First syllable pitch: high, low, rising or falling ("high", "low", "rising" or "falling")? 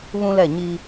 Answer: high